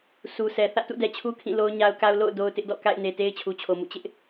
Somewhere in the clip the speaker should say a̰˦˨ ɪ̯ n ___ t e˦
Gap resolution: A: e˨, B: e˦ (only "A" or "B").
A